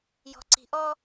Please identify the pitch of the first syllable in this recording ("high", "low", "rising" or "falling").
low